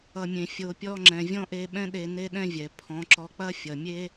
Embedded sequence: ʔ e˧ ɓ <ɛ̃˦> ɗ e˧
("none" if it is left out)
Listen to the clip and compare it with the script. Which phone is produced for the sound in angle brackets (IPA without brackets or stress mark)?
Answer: ɛ̃˦